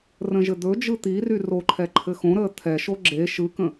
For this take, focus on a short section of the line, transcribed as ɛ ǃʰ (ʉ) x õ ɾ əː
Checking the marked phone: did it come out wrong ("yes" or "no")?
yes